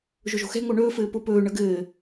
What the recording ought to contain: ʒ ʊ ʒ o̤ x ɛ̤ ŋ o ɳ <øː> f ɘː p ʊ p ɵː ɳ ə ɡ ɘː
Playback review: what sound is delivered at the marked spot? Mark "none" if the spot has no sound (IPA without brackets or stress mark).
ɵː